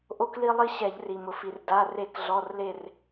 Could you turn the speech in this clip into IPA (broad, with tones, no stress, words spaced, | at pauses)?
ʔo˦kli˦lˠi˦ ɕɛ˧˩˧ʎri˩ mʊ˩fi˩r da˩˧˩ re˧˩˧kɮɔ˩˧˩rle˧˩r